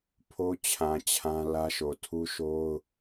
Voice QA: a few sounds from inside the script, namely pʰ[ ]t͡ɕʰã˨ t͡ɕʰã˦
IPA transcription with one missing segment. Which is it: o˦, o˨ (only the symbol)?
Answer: o˦